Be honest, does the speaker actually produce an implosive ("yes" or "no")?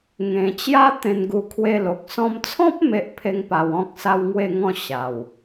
no